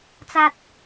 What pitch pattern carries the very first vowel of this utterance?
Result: low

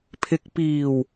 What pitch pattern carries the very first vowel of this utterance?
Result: low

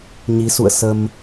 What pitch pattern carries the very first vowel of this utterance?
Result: rising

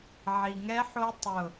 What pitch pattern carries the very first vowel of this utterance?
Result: low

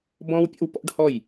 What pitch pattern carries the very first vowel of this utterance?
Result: high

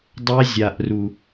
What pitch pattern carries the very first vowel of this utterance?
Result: high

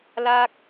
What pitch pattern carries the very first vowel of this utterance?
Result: falling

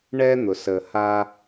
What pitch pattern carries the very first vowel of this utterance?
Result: high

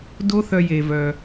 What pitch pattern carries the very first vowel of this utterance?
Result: high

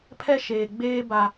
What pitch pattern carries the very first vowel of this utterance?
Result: high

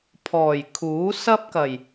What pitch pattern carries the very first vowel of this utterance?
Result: low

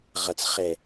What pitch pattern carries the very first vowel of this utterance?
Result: low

